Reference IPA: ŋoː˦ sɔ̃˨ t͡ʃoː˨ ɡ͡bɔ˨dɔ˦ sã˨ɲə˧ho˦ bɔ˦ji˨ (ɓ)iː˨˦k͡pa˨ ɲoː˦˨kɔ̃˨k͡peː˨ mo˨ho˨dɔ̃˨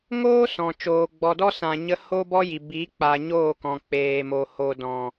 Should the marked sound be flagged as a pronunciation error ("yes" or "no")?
yes